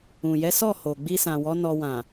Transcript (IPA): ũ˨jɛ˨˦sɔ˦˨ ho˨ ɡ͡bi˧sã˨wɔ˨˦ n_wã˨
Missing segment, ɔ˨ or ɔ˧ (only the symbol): ɔ˧